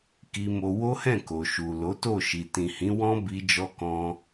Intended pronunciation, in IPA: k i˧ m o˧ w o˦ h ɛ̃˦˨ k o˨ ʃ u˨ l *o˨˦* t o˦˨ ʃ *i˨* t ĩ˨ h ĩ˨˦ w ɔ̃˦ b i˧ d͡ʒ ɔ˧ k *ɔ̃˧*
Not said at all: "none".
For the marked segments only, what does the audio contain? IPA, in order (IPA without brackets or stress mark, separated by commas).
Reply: o˨˦, i˨, ɔ̃˧